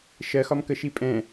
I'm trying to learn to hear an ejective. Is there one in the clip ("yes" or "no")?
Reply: yes